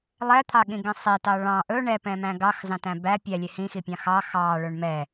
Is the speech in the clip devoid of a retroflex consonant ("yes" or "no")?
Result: no